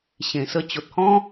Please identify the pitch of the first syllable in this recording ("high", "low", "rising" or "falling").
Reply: low